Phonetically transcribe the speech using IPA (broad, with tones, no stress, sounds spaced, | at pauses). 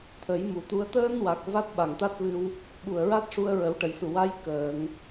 t̪ʰ ə˨˩˦ j m u˨˩˨ t̪ u˧˥ ə̯ t̪ əː˧ n w a˨˩ k̚ v a˦˥ t̚ ɓ a˨˩˨ ŋ t̪ a˦˥ t̚ v ɨ˧ w | ɓ u˨˩ ə̯ ɹ a˦˥ t̚ ʂ u˧ ə̯ ɹ ə˨˩˦ w ʈ ə˨˩˨ j s u˨˩ w a˧˥ j k əː˨˩˨ ŋ